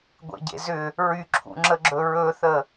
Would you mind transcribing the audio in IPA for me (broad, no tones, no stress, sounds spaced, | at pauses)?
ɡʷ ḛ ɟ ḛ z ʏ | ɹ y ǁʰ ṵ ŋ͡ǁ ə ɡ͡ǁ ɵ ɹ ɵ θ ə